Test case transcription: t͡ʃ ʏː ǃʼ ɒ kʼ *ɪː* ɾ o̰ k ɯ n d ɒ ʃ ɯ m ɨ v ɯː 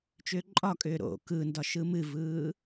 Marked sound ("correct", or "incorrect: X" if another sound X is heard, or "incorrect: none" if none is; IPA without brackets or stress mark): incorrect: ʏː